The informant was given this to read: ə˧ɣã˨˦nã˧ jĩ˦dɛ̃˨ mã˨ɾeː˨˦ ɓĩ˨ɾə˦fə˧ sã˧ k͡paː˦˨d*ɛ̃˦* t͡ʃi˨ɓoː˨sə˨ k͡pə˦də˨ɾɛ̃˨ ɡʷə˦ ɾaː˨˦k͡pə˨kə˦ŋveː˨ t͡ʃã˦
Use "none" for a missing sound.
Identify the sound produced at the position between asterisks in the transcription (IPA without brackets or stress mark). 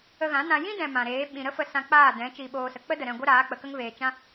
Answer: ɛ̃˨˦